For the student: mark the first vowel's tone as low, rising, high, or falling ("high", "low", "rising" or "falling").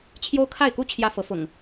high